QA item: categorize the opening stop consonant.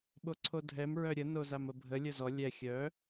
implosive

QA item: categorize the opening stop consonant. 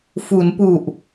plain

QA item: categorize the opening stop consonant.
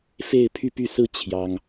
aspirated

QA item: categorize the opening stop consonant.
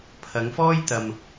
aspirated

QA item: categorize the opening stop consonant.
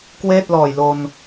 plain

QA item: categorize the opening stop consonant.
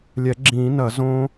click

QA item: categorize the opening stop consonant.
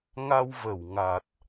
plain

